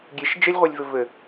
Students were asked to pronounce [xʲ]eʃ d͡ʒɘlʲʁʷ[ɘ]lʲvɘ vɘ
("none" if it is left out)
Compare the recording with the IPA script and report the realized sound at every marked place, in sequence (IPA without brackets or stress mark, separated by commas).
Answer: ɡʲ, e